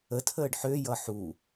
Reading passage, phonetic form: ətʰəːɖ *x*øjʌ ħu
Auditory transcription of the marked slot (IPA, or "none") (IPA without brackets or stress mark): ħ